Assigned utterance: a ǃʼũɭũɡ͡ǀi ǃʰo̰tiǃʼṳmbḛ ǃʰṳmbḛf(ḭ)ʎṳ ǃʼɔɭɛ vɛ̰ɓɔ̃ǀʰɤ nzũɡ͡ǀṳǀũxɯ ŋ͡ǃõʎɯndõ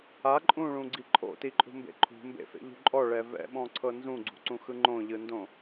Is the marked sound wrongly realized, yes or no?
yes